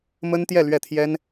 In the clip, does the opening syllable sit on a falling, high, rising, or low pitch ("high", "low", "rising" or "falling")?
high